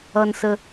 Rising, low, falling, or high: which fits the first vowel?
low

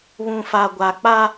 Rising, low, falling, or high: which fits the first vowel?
low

